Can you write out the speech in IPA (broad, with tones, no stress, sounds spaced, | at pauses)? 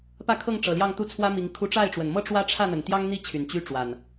p ä˥˨ kʰ ɤ˥˨ ŋ ʈ͡ʂ ɤ˨˩ l j ɑ˥˨ ŋ t̪ u˦ t͡sʰ w ä˦ m i˨˦ ŋ kʰ u˦ ʈ͡ʂ a˥˨ ɪ̯ ʈ͡ʂ w ə˨˩ n m ɤ˦ ʈ͡ʂ w ä˦ ʈ͡ʂʰ ä˥˨ n̪ ə˨˩ n t̪ j ɑ˦ ŋ n̪ i˥˨ t͡ɕʰ y˨˩ n t͡ɕ y˦ ʈ͡ʂ w a˨˩ n